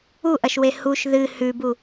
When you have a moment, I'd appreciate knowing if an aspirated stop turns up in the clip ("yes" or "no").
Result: no